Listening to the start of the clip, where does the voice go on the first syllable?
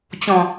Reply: low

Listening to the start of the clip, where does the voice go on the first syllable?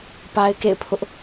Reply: high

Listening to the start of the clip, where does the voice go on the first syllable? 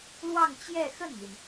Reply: falling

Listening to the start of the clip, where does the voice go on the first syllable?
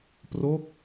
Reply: falling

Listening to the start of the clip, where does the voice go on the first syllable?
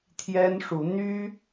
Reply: high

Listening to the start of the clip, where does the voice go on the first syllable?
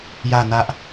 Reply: falling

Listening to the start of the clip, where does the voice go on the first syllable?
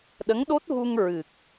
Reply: rising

